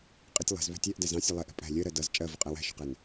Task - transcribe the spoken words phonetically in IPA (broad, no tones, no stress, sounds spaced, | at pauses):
qʼ ɪ tʲ lˠ ɛ̤ z β æ̤ tʲ æ ʔ d æ z ɑ̃ sʲ ɜ lˠ ɛ ʔ ɛ̤ pʼ æ̤ lʲ ɜ ɾ ɜ d ʌ z t͡ʃʼ ɜ v ʊ qʼ æ w æ̤ ʃ ʊ q ɛ n